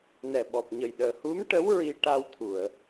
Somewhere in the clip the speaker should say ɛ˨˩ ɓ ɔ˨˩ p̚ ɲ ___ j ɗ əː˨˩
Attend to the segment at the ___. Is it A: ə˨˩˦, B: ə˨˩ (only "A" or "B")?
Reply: B